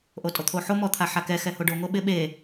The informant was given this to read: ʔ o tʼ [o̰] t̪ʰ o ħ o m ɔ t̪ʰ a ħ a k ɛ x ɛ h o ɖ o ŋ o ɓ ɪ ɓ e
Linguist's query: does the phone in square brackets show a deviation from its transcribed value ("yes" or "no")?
yes